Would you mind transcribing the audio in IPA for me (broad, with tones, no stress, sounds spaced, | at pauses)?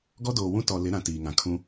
ɡ ɔ˦ d oː˨ w ũ˦ t ɔ˨ l ɪ˨˦ ɾ ã˨ t iː˨ ŋ ã˨ kʰ ũ˦